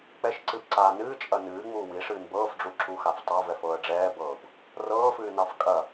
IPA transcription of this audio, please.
k͡p ɛ ʃ ǀ ɨ b ǀ aː n ɨː t͡ʃʼ ɐ n ɨː ŋ͡m uː w i ʂ ɨː n b ɤː f ɖ͡ʐ u ǁ u x a f tˤ a v ɛ f ɤː ə̯ ɖ͡ʐ ɛː b ɤː b | r ɤː f ɨː n ɑ f kʼ ɐ

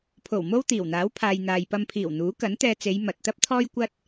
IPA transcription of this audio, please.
pʰ o˨˩ w m o˥ w t̪ iː˨˩ w n̪ aː˨˥ w pʰ aː˨ j n̪ aː˨ j p ɐ˧ m pʰ iː˨˩ w n̪ uː˨˥ k ɐ˨˥ n t̪ ɛː˧ t͡s e˨˧ j m ɐ˨ t̚ t̪ ɐ˥ p̚ t̪ʰ ɔː˥ j kʷ ɐ˥ t̚

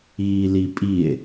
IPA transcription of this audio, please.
iː l i pʼ i e̯

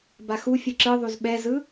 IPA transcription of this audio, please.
b a x u fʲ ɯ ǁ ɯ ðˤ u z ɓ ɛ z ɯ

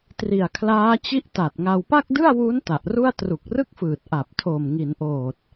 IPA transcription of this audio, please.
t r i˨˩ a̯ kʰ l aː˦˥ t͡ɕ i˥˩ ʔ t a˨˩ t̚ ŋ a˧ w p a˥˩ k̚ d ɯ˥˩ a̯ w u˦˥ n t a˨˩ ʔ r u˥˩ a̯ t r u˨˩ k̚ r ɯ˥˩ k̚ f ɯː˨˩ t̚ ʔ a˨˩ p̚ tʰ o˨˩ m ŋ i˩˦ n ʔ oː˨˩ t̚

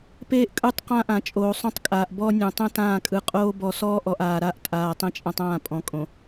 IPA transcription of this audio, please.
p eː˦ ʔ kʼ ɯ˦˨ tˤ q ã˦ ʔ ã˨ t͡ʃʼ oː˨ sˤ õ˦ tˤ kʼ aː˨ ʔ b ɔ˦ nʲ õ˨ tˤ ɛ̃˦ t ãː˦˨ kʼ ɯ˨ qʼ oː˦ b ɔ˨ s ɔː˦ ʔ ɔ˨ ʔ aː˨ ɾ a˦ ʔ tʼ aː˨ tˤ ẽ˦ t͡ʃʼ ã˦ tˤ ãː˦˨ pʼ ɔ̃˨ kʼ õ˨

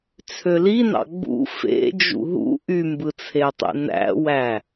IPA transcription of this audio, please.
t͡sʰ ø l i n ɑ̰ ɡ͡b ṵ f ḛ d͡ʒ ṵ ɦ ṵ ʔ y m b ɯ t͡sʰ e tˤ ḛ n æ̰ w æ

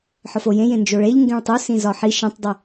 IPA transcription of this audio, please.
ħ ɒ f o j ẽ j ẽ n d͡ʒ o ɭ e ʎ ŋ ɡ ẽ ɭ tˤ u s ĩ z ɒ ħ i ʃ ẽ tˤ dˤ i

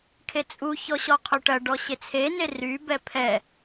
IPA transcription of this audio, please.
kʰ e t͡sʼ u ç ɔ ɕ ɔ qʰ y ʈ ɐ ɖ ɔ ɕ e t͡sʰ e n e r y b ɛ pʰ ɛ

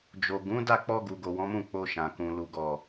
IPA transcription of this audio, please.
d͡ʒ o˨ ɡ ũ˨˦ d a˦˨ k͡p ɔ˧ ɡ u˨ ɡ o˨ w ɔ̃˨˦ m ũ˦˨ k͡p o˧ ʃ ã˨ k ũ˨ l u˨ ɡ ɔ˨

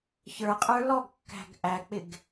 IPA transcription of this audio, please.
ç ə˞ qʼ ə˞ l ɔ ɡ kː æ̤ ɡ ʔ æ k͡p ɪ ɡ

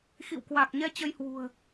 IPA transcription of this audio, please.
x ḭ˧˨ w k w a˨˩ k̚ ɲ ɛ˧ t͡ɕ ə˧ j h w ṳ˨˩ ə̯

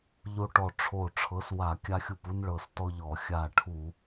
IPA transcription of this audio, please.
ʎ o˦ ʈ ɔ˧˩ ʈ͡ʂʰ o˧˩ ʈ͡ʂʰ ɤ˨˥ s w a˧˩˧ kʲ a˦ xʲ u˧˩ p u˦ n ɭ ɤ˧˩ s t ɔ˦ ʎ ɔ˧˩˧ xʲ a˧˩ ʈʰ u˧˩˧

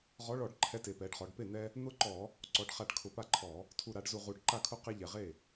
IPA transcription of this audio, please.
ʁ ɔ˨˥ ɭ ɔ˧˩˧ ɖ ǃʰ ɛ˨˥ t e˩˧ p ɛ˩˧ ɖ χ ɔ˩˧ ɖ p e˥˩ n̪ ɛ˦ | n̪ ʊ˦ ǃ ɔ˧˩˧ | ǀ ɔ˩˧ ɖ χ a˧˩˧ ɖ kʰ ʊ˧˩˧ p a˥˩ ǃʰ ɔ˧˩˧ | tʰ u˨˩ ɾ a˩˧ ɖ z u˨˩ ʁ u˨˩ ɖ ǃ a˥˩ kʰ ʊ˦ q e˦ ʎ ɛ˨˩ ʁ e˥˩

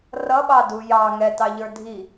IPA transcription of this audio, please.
r ʌ ɓ ɑ d u j ɑ ŋ ɛ t ɑ ʎ ə˞ dʱ i

